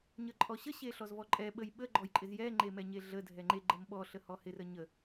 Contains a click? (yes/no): yes